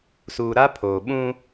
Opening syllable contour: low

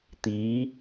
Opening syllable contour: rising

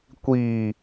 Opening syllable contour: low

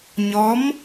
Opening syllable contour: rising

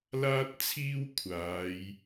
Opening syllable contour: high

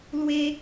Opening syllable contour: high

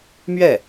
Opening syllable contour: falling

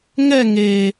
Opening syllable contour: falling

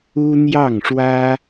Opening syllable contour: high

